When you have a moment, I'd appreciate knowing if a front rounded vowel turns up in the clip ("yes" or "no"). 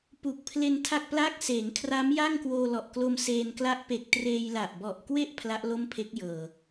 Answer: no